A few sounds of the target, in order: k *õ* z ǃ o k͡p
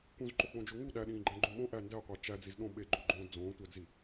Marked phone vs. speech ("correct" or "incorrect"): incorrect